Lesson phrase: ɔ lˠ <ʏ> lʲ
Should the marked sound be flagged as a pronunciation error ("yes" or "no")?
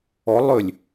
no